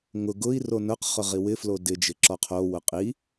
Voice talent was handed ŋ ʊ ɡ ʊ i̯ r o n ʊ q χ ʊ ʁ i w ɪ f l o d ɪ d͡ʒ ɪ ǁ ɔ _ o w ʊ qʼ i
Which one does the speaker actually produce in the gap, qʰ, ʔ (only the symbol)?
qʰ